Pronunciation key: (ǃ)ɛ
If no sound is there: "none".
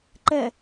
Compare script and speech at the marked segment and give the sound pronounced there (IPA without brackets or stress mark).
ǃ